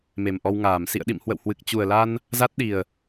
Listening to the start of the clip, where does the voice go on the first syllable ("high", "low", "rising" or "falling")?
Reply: low